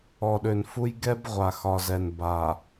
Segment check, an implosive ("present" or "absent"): present